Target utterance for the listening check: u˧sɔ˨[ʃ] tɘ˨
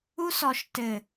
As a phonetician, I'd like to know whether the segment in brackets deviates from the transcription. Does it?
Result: no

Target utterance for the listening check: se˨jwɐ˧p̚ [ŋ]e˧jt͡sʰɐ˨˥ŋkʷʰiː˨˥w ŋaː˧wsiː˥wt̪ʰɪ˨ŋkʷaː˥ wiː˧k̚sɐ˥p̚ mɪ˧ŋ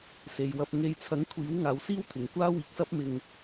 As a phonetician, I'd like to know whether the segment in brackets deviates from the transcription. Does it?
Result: no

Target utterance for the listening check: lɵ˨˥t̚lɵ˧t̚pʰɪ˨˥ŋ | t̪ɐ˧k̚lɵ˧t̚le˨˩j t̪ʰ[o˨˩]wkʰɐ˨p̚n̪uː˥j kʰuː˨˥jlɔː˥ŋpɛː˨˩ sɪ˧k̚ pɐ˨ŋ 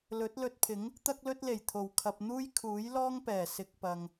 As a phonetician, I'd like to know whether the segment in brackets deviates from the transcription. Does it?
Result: no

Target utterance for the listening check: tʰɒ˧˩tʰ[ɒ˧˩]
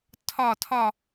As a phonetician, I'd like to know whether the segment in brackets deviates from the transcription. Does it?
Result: no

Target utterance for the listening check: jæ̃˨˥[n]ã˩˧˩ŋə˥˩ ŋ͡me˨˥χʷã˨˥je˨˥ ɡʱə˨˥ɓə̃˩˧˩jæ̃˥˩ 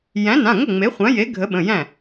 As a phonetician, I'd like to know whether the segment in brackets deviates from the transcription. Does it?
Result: no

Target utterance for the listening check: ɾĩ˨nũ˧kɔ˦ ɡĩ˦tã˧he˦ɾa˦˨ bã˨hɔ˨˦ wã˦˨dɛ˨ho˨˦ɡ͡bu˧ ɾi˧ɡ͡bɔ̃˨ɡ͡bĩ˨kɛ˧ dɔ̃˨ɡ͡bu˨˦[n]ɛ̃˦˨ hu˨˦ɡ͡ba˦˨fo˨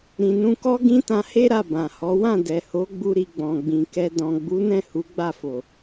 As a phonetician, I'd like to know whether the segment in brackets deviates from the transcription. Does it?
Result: no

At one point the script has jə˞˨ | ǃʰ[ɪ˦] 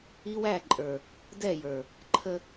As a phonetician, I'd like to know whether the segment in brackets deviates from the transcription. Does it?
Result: yes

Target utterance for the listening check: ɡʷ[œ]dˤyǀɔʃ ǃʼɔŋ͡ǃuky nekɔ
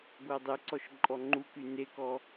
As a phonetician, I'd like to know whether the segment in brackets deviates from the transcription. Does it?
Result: no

